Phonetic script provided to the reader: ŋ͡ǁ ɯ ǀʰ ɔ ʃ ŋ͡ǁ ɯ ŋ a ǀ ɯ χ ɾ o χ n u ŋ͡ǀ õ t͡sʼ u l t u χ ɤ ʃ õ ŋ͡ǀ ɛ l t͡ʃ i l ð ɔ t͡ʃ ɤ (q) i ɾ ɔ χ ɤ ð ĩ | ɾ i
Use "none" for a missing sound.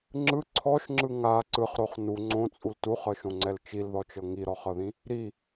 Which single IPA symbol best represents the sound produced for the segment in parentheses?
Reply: ŋ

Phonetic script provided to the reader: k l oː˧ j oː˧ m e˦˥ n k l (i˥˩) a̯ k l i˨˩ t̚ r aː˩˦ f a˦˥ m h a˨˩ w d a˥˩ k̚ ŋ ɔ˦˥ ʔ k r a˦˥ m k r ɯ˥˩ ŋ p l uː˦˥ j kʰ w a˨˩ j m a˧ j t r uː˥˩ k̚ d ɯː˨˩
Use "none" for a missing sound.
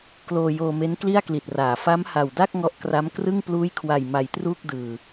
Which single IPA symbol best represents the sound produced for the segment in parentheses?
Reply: i˥˩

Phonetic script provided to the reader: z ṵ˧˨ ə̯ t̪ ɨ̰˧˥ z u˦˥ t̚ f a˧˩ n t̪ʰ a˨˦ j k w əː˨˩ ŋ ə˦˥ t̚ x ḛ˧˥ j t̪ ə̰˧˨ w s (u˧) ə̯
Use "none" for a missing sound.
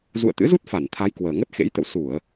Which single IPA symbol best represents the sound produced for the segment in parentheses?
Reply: u˧˩˨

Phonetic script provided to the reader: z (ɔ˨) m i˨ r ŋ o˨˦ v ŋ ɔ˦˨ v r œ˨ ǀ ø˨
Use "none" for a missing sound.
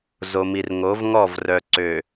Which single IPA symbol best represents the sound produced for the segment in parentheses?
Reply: o˨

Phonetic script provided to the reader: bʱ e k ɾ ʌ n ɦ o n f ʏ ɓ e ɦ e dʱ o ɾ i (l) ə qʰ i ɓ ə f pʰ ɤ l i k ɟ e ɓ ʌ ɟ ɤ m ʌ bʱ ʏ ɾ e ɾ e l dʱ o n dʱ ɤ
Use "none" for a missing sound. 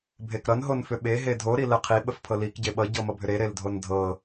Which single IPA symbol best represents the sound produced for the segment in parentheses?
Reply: l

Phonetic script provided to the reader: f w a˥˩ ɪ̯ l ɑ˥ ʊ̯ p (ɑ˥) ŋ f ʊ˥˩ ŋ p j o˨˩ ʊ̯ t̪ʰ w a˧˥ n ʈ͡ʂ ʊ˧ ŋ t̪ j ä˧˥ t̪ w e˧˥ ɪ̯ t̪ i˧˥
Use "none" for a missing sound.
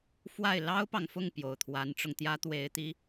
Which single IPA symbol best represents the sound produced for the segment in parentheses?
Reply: ɑ˨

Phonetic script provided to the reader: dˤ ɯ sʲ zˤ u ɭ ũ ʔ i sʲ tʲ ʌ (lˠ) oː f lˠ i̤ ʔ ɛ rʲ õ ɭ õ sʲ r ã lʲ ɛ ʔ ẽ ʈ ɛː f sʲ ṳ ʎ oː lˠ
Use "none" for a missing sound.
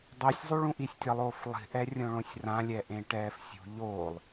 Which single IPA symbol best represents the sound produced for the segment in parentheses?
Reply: lˠ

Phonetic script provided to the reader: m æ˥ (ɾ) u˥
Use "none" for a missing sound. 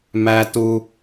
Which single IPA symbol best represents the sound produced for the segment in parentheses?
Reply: t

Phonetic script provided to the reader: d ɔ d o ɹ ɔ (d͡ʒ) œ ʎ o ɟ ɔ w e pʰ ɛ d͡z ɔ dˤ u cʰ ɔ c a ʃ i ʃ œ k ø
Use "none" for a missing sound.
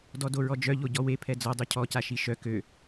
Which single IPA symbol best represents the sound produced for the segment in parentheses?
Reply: d͡ʒ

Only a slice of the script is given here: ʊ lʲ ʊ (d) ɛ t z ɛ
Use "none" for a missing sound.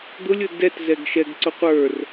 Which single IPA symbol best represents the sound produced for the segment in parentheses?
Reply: d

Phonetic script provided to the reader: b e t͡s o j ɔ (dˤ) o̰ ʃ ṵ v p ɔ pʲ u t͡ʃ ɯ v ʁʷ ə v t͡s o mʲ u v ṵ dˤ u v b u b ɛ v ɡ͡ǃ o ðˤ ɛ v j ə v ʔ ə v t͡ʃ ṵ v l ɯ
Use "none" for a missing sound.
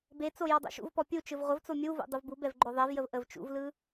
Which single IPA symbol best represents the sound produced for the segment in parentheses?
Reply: dˤ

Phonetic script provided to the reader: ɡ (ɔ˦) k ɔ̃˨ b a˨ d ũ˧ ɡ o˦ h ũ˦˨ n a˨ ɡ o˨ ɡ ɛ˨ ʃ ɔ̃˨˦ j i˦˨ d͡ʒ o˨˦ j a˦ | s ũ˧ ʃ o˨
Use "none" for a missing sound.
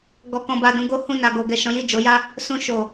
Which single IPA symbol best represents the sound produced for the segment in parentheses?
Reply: ɔ˨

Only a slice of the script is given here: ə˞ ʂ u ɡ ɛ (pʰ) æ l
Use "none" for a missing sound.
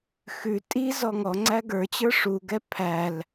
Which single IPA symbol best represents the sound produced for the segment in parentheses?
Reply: pʰ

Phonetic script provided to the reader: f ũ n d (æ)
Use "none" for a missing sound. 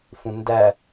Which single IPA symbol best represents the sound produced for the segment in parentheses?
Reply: æ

